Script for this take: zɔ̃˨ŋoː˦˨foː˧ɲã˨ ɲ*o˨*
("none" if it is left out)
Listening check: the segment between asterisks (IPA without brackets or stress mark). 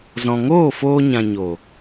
o˨